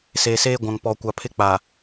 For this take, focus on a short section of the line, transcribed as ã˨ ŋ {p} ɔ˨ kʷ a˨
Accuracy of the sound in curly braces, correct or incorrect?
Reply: correct